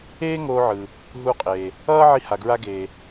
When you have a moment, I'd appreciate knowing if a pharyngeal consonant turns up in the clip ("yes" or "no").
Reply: yes